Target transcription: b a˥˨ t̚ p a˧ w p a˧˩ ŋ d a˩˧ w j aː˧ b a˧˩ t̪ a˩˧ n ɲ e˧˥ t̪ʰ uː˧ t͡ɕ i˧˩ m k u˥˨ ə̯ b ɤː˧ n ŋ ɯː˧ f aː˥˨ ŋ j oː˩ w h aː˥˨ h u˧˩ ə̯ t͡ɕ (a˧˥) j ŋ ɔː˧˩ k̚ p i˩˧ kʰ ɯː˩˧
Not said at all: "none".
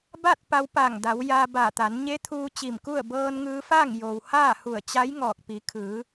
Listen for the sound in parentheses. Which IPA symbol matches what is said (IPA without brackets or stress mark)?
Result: a˧˥